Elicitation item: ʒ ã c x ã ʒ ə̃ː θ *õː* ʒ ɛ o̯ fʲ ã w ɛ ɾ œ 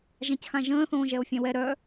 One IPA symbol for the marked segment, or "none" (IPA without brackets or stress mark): õː